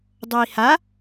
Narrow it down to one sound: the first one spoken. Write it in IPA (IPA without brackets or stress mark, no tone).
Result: dˤ